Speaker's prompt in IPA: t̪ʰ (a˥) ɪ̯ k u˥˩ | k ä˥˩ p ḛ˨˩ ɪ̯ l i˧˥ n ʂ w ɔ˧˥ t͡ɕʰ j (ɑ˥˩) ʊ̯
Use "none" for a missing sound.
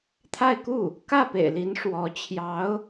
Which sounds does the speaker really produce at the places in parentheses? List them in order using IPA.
a˥˧, ɑ˧˥

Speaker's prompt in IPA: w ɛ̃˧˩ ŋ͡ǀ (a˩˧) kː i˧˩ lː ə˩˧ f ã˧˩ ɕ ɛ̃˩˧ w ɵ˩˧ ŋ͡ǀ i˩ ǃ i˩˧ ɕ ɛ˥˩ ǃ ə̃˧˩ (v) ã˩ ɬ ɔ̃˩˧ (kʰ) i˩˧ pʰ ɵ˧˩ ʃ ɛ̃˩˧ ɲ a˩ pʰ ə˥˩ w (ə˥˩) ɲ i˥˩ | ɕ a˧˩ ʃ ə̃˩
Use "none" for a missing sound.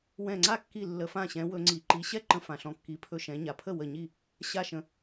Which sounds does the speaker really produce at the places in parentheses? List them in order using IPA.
a˥˩, f, kː, ə˧˩

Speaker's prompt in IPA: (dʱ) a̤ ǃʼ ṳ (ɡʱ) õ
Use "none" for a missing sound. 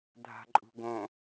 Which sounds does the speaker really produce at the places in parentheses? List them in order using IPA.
dʱ, ɡ

